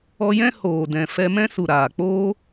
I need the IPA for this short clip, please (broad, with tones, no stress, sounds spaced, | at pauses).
ɔ˧ j ɛ̃˦ h oː˨ d ɛ̃˨ f ɛ˧ m ɛ̃˦ s u˨ ɾ aː˨ k͡p oː˦